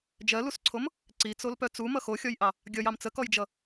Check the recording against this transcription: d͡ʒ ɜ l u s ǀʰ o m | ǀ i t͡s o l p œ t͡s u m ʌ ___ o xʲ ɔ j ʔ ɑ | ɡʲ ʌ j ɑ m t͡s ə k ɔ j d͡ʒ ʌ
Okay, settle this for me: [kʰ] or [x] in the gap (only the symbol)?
x